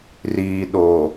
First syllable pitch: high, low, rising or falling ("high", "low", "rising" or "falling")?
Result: low